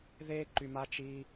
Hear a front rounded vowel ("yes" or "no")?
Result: yes